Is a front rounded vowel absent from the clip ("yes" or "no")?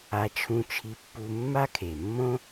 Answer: yes